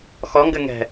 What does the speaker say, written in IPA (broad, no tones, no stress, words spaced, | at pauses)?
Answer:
xɔ ŋɡɘŋɛ̤